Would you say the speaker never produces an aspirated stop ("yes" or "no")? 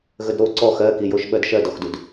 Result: yes